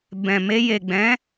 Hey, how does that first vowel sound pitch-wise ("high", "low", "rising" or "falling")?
low